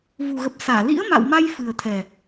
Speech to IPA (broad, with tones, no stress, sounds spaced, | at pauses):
v u˨˩ ɣ ə˨˩ p̚ s aː˧˩ l ḭ˧˥ ə̯ m a̰˧˨ w m a˧ j f ɨ˨˩ ə̯ t̪ʰ ɛ˨˩